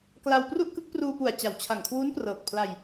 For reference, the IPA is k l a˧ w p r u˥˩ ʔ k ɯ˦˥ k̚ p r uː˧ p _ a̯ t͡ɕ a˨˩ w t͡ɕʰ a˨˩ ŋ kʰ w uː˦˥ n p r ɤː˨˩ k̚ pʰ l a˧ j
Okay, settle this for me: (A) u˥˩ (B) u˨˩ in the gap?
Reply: B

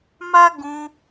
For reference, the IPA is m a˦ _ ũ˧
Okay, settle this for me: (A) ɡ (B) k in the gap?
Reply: A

